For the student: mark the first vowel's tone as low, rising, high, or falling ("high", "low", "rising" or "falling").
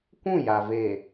falling